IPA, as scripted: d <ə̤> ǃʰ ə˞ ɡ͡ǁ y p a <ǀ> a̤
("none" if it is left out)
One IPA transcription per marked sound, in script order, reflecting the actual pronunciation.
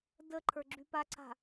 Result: ə, ǀ

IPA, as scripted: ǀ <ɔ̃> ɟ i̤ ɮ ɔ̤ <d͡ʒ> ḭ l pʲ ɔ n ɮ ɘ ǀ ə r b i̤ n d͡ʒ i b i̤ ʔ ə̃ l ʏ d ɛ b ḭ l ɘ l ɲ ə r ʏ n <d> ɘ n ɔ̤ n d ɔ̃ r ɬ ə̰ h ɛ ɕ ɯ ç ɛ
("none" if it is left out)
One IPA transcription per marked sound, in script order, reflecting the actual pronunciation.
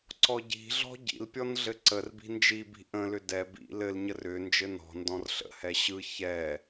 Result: ɔ, ɟ, d͡ʒ

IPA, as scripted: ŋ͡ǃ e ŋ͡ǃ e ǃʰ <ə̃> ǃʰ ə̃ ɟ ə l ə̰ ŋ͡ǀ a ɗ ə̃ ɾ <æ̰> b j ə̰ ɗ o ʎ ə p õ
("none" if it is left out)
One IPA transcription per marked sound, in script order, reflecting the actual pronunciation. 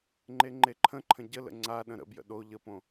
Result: ə̃, ə̰

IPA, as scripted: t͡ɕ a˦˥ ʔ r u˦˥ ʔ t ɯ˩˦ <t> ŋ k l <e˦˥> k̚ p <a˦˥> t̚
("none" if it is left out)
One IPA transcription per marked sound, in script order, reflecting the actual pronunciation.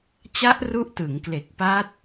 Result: none, e˨˩, a˦˥

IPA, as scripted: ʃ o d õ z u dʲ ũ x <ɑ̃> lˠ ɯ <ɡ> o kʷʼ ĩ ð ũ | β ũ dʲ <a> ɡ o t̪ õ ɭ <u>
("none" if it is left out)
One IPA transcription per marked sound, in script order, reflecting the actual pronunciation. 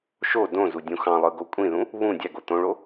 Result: ɑ̃, ɡ, æ, o

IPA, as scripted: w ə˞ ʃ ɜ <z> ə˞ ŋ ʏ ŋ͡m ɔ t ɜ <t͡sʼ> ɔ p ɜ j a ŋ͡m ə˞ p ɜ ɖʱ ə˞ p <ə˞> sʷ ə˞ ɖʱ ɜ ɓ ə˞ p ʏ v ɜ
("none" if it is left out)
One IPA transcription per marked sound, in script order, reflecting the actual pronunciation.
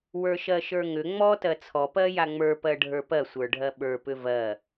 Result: ʃ, t͡sʰ, ɜ

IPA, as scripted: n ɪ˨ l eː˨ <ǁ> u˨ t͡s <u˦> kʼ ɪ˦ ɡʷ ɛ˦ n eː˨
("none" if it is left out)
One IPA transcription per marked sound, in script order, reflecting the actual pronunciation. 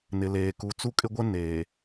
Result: k, u˦

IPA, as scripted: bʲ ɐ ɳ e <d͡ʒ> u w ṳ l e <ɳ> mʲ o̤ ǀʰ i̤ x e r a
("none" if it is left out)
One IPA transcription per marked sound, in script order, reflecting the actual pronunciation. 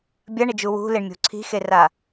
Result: d͡ʒ, ɳ

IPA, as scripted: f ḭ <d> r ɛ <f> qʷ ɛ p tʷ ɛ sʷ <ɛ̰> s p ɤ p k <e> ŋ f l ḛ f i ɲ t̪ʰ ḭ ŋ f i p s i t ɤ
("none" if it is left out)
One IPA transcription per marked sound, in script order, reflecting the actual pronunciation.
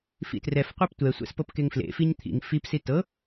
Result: t, f, ɛ̰, e

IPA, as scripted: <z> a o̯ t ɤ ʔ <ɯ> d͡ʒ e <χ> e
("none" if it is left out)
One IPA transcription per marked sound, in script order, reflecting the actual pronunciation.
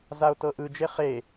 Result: z, ɯ, χ

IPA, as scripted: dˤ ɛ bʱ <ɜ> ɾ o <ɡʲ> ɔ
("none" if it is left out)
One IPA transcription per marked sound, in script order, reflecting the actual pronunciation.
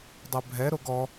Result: ɛ, ɡ

